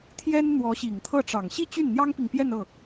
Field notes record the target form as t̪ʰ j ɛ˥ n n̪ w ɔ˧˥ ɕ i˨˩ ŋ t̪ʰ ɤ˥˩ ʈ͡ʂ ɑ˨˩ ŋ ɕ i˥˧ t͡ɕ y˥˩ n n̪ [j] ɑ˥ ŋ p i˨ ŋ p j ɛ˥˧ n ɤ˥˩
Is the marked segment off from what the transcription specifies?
no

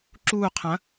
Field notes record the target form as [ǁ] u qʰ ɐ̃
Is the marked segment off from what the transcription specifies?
no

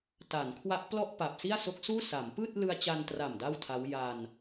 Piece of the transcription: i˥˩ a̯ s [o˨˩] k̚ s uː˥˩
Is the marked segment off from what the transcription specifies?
yes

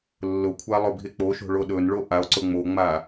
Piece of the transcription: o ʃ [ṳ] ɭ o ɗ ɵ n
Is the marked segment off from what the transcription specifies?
yes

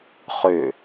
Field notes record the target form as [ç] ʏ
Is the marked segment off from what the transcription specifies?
yes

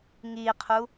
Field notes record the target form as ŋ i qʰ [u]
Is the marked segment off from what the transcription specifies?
no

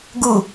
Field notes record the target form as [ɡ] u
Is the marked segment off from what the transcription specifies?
no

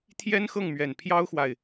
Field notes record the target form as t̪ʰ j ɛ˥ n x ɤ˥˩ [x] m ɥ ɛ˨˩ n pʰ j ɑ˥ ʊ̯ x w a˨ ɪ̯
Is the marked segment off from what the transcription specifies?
yes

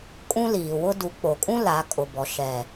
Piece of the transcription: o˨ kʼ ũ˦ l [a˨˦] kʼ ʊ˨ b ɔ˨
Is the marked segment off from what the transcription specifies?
no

